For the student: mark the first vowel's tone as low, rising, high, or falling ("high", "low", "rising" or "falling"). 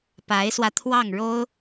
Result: rising